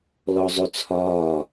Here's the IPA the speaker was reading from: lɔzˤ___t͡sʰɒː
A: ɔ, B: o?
B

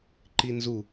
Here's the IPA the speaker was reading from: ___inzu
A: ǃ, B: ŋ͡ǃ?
A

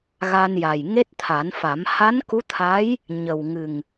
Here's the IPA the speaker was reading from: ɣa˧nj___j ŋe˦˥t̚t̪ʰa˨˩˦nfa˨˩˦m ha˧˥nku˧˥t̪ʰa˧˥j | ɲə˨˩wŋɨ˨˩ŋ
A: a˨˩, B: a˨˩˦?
A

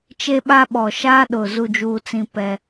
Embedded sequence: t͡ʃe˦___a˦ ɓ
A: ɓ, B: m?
A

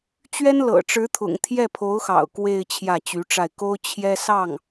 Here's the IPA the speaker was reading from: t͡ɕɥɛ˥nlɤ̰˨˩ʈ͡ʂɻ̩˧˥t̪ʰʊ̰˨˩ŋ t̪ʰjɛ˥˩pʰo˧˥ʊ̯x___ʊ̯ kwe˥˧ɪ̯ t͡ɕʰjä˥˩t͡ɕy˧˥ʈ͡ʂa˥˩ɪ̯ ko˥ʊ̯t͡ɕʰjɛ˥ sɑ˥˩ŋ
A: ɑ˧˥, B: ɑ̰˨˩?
B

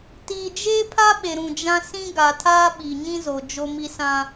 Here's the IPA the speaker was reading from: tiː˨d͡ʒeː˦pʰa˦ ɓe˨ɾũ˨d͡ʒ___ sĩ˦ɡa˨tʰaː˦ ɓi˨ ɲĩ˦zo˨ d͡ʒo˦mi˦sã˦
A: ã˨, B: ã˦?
B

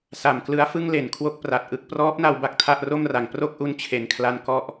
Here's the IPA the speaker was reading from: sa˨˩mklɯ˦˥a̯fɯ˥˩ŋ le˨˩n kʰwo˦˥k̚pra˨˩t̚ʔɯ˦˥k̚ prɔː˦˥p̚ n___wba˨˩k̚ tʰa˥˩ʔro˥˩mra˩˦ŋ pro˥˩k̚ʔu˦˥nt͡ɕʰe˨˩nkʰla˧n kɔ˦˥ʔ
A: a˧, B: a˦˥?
B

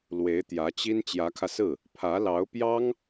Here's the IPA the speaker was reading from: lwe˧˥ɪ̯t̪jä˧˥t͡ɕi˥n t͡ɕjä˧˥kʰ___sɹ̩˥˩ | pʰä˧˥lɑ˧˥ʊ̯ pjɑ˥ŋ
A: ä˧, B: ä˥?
A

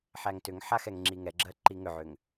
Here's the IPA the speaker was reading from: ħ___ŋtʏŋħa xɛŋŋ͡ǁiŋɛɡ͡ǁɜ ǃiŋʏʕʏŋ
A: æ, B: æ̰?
A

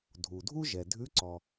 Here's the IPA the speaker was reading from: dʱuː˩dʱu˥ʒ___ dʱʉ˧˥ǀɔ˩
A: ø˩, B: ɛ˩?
B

